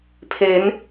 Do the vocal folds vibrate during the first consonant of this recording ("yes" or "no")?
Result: no